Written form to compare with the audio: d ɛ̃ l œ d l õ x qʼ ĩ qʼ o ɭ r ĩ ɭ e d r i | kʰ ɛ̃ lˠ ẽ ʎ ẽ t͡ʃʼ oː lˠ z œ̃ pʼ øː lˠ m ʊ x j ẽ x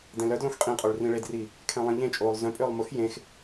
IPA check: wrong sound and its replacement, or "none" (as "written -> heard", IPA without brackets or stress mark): none